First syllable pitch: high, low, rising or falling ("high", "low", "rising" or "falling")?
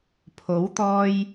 rising